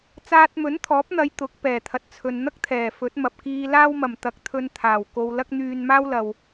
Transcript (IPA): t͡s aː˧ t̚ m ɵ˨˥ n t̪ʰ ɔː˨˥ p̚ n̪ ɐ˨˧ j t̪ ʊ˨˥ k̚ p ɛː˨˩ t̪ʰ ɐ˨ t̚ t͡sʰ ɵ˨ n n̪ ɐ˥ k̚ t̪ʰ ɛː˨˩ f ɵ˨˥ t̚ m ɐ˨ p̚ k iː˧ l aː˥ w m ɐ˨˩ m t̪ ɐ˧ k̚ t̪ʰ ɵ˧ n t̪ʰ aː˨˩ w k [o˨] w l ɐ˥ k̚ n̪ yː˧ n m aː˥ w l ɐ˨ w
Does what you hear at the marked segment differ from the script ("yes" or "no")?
yes